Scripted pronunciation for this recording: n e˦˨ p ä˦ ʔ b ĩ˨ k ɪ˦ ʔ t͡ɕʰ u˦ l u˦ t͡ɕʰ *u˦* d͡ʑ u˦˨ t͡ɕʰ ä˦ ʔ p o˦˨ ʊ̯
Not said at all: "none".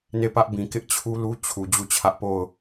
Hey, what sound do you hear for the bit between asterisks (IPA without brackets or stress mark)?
u˨